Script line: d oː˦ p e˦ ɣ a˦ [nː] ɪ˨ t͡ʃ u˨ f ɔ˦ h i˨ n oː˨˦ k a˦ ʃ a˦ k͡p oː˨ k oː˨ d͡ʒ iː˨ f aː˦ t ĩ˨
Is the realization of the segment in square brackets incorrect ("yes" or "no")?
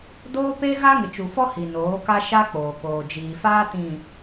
yes